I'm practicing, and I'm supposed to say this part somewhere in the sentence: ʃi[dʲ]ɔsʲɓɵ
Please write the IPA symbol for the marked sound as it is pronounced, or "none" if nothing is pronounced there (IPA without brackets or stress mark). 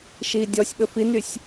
dʲ